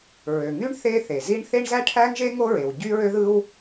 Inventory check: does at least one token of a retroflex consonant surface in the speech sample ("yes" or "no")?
yes